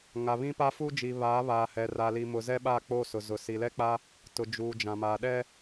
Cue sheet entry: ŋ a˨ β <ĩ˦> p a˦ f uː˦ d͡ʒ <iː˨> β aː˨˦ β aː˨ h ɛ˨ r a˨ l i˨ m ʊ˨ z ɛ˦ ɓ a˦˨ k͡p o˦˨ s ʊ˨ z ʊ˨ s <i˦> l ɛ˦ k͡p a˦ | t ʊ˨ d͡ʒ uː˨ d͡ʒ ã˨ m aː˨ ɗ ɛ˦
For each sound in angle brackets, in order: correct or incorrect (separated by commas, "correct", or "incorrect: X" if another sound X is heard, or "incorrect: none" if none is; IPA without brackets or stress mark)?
correct, incorrect: i˨, incorrect: i˨